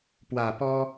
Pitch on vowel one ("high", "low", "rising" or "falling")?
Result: low